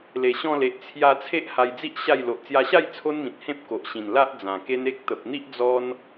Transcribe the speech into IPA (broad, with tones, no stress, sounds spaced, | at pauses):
l e˨˩ ɕ ɔ̃˧ l e˨ ʔ t͡sʰ j a˧ t͡sʰ e˦ ʔ h a˧ j d͡z i˦ ʔ ɕ a˥˧ j l o˨ ʔ t͡s j a˧ ɕ a˥˧ j t͡sʰ o˦ n m ĩ˨ t̚ h ẽ˦ p̚ k o˨ ʔ ɕ ĩ˨˩ n l a˦ ʔ d͡z ã˨˩ k e˦ n e˦ k̚ t̪ ə˨ p̚ n̪ i˦ ʔ d͡z ɔ˧ n